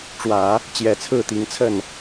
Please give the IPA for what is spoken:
ʈ͡ʂ w ä˨˩˦ | t͡ɕ j ɛ˨˩ t͡sʰ ɹ̩˥˩ t̪ i˧˥ ŋ t͡sʰ ə˥˩ n

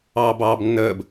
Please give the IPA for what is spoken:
ɑː b ɑː b nː əː b

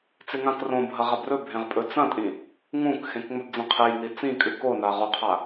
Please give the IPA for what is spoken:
t͡s e ŋ ã k r õ bʱ ɐ ʁ a b r ɵ bʱ ẽ ʁ pʼ ɵ t͡s ɐ̃ tʼ ĩ | ŋ ũ k x ẽ k ŋ͡m ɵ b d͡z ẽ qʰ e j n i t͡s ĩ kʼ ɨ k o n a ʁ o qʰ a

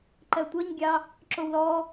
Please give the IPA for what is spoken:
ǃ ɜ tʷ ʌ ɲ ɡʲ ɑ | ǁ o w l ɔ

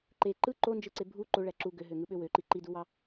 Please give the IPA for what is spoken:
ǃ e ǃ ɯ ǃ o n d͡ʒ ɯ ǀ e bʱ u ǃ o ɭ æ ǁ u ɡ ø ɦ ø ŋ ɯ ɓ ø w ø ǃ i ǃ i d u w ɑ

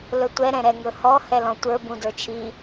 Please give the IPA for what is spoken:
l ɵ tʷ ɛ ɾ ɛ̃ ɾ ɛ ŋ ɵ h ɔ h ɛ l ɔ̃ tʷ ə˞ b ũ d ə˞ t͡ʃʰ i

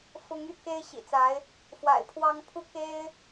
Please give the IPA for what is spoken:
f ʊ˧˥ ŋ y̰˨˩ k e˥ ɪ̯ ɕ ḭ˨˩ t͡s a˧˥ ɪ̯ | f w a̰˨˩ ɪ̯ pʰ w ɑ˥ ŋ pʰ u˥˩ k e˥ ɪ̯

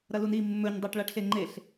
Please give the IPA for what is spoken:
ɾ ɐ l u n i mː ɵ ɲ dˤ a ʈ ɭ a ʈ ɬ e ŋ͡ǃ e ɬ

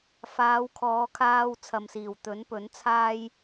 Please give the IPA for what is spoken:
f aː˨˧ w kʰ ɔː˨˧ kʰ aː˧ w t͡sʰ ɐ˨ m s iː˨˩ w t̪ ɵ˨˥ n p ɵ˨˥ n t͡sʰ aː˥ j

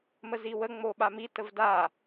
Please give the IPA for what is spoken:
m ə z i w ə ŋ͡m o ɓ a m i t ə v d a

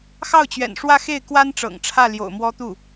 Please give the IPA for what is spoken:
x ɑ˥˩ ʊ̯ t͡ɕ ɥ ɛ̰˨˩ n ʂ w ä˥˧ x e˥˩ ɪ̯ k w a˥ n ʈ͡ʂ ɤ̰˨˩ ŋ ʈ͡ʂʰ ä˥˩ l j o̰˨˩ ʊ̯ m w ɔ˥ t̪ u˥˩

